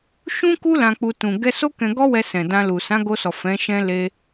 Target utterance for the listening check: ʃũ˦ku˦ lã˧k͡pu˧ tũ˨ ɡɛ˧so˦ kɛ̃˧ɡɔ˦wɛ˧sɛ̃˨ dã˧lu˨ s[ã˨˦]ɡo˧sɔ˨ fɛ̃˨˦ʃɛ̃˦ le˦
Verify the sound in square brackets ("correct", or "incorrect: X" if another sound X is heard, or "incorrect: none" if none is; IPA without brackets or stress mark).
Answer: correct